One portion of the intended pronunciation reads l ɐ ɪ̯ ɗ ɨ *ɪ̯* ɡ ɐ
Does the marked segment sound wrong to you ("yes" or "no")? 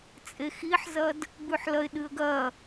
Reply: yes